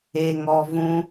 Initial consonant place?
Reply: velar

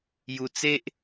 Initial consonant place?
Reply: palatal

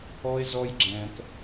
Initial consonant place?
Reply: alveolar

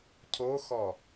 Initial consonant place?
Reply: palatal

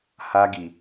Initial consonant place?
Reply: glottal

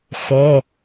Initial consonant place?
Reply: velar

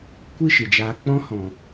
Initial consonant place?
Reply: velar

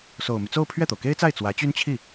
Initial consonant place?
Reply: alveolar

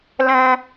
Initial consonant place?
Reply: alveolar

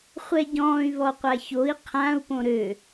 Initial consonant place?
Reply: uvular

